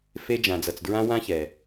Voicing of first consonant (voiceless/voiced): voiceless